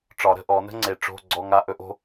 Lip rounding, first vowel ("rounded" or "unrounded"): rounded